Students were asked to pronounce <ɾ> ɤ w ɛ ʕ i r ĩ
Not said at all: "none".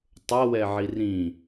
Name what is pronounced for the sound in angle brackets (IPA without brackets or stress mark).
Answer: tˤ